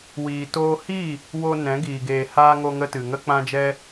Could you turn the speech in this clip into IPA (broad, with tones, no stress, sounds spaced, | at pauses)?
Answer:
w iː˧ t oː˦ h i˦˨ | w o˧ n ɛ̃˨˦ ɡ iː˧ ɡ eː˧ h aː˦ ŋ o˧ ŋ ə˧ t ɨ˨ ŋ ə˦ k͡p ã˦ d͡ʒ ɛ˦